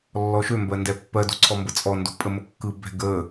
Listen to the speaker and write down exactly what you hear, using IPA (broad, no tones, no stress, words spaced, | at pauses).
lːɔʃømbɜ ndɛpːɜdo̤ǀʰɔ mbət͡sʼɔndo̤pʼə məkːɯbɛ̤ ɡə